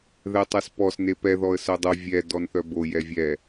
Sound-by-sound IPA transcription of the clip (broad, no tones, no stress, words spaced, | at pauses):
ðɛtˤɛspɔs nepɛ ðɔə̯sœdˤo vʲɛ dɔnθœbo jɛvʲɛ